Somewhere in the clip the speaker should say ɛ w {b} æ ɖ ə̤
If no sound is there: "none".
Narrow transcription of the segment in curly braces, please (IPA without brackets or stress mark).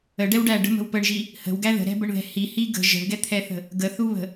ɖ